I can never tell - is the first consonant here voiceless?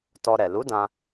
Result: yes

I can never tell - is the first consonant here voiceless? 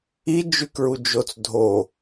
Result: no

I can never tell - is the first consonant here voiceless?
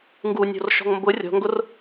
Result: no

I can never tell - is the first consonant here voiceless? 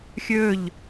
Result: yes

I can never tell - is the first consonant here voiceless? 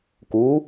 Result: yes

